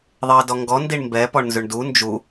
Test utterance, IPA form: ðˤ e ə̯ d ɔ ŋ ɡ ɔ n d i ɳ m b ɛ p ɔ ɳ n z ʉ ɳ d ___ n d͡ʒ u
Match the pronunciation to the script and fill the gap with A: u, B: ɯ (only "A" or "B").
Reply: A